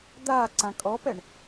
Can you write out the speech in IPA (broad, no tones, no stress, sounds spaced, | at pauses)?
d̪ a ǀ ã kʼ ɔ p ɛ ɳ